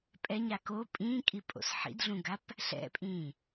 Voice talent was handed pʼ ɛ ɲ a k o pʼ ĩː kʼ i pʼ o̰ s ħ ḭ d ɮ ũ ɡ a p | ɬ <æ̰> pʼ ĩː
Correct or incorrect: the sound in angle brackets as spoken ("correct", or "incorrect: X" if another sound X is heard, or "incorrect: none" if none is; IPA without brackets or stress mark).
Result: incorrect: ɛ̰